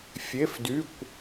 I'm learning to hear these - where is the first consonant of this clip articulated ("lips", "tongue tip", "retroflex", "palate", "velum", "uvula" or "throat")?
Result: lips